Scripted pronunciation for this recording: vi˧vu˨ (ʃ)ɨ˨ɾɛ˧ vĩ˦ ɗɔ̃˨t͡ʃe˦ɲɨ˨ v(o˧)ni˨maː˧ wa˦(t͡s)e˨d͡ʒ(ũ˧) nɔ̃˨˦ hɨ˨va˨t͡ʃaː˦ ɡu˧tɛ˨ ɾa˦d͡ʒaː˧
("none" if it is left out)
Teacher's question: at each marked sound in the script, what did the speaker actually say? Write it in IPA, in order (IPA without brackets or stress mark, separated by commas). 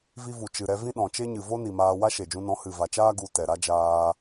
t͡ʃ, o˦, ʃ, ũ˧